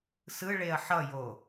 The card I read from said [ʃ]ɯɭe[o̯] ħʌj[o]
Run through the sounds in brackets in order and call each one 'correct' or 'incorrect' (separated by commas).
incorrect, incorrect, correct